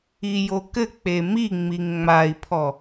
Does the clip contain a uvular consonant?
no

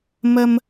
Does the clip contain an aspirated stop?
no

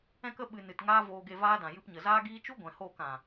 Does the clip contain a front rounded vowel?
no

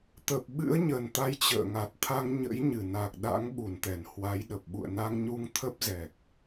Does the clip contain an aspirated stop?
yes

